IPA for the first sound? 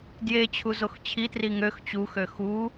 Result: d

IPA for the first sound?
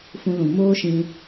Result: f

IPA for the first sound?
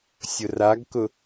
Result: sʲ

